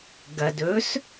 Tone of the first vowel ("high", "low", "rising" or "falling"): low